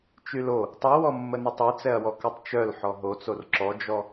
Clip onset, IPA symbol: t͡ʃ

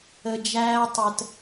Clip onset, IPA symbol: ə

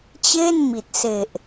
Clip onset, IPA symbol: t͡ɕ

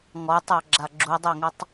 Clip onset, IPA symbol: ŋ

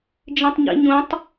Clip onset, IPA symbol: d͡ʒ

